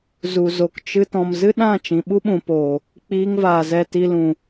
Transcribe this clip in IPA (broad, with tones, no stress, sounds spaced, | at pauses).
z u˨ z o˨ k t͡ʃ ɨ˧ t ɔ̃˨ m z ɨ˦ ɗ ã˦˨ t͡ʃ ĩ˨ ɓ u˦ ɓ ũ˨ p oː˨ | k͡p iː˧ ŋ v aː˨ z ɛ˨ t i˨ l ũ˨